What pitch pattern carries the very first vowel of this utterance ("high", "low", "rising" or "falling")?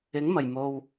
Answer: rising